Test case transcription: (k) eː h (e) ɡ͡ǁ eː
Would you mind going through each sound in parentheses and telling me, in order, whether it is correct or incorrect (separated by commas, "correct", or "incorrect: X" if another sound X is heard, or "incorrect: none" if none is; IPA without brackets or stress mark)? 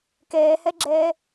correct, correct